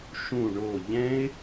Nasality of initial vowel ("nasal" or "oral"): nasal